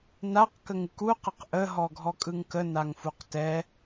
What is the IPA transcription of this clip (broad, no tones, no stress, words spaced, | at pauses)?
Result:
naq kəŋɯku qəqʔə ɦɔɡʱɔkʼɯŋkə naŋfuqtɛ